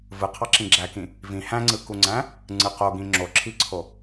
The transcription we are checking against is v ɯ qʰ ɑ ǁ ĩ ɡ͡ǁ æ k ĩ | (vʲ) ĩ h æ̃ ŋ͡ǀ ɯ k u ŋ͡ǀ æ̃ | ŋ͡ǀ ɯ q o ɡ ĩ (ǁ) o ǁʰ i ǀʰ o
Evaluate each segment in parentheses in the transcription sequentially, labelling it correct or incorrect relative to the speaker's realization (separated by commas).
incorrect, incorrect